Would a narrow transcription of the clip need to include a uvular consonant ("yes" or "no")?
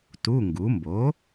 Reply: no